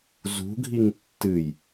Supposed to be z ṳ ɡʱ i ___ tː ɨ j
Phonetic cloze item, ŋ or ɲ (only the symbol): ŋ